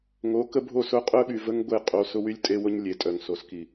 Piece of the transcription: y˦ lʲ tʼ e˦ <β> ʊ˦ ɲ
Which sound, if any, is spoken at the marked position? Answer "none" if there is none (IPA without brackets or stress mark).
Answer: w